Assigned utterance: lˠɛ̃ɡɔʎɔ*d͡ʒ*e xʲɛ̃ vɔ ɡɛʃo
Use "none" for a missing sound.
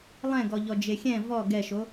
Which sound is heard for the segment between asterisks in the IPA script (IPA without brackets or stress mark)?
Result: d͡ʒ